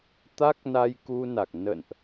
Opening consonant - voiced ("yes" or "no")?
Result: no